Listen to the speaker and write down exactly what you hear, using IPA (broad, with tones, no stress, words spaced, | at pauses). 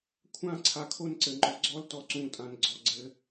kʷʰãː˦ǀʰa˨kʰo˦n ǀɘ˨ŋ͡ǃɔ˨ ɡ͡ǀɔ˦l tɔ˨ǀũː˨tʼã˨n ɡ͡ǀɔ˨ ɡ͡ǀɘ˨˦